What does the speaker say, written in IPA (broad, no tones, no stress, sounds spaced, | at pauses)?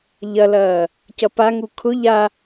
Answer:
ʎ ɐ l ɐː | c ɐ p a ŋ u kʰ ʊ ʎ a